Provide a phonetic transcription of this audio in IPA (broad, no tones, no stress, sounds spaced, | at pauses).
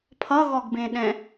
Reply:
pʰ ʌ ɣ ɔ ɡ b ẽ ɗ ɛ̃